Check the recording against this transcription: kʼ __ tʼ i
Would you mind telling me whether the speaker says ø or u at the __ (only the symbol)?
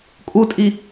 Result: u